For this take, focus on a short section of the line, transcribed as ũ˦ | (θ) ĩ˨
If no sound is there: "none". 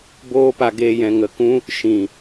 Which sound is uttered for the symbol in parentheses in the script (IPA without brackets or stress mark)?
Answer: ʃ